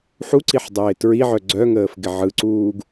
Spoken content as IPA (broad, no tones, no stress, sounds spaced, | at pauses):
ħ u ǀ i ħ dˤ ɪː t ɹ i ʕ œ ɡ͡ǀ œ ŋ əː f ɡ ɪ ʕ ɯ ǀ uː ɡ